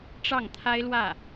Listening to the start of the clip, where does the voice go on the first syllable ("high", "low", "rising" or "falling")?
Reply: falling